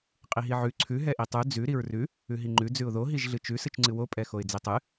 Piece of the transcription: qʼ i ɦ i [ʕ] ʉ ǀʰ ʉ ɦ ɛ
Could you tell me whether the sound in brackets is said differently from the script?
no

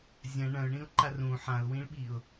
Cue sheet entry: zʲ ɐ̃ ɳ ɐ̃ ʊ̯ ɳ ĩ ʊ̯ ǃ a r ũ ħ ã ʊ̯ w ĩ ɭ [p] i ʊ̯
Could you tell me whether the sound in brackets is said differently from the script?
yes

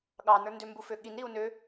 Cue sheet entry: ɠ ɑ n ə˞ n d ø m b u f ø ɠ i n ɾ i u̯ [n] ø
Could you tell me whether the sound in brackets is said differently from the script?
no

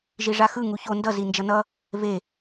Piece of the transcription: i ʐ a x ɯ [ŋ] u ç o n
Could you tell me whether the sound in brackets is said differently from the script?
no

